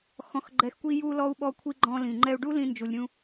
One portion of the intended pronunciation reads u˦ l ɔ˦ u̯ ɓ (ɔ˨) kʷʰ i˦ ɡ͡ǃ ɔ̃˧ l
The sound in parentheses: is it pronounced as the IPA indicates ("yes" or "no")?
no